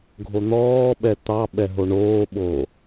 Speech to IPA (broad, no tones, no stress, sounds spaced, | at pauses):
ɡʱ o n̪ ɔː ɓ ɛ t̪ ɑ ɓ ɛ ɦ o ɳ oː ɓ oː